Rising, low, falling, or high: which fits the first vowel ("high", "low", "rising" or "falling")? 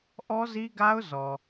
high